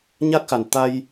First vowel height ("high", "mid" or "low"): low